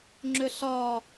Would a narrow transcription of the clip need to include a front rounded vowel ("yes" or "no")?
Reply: yes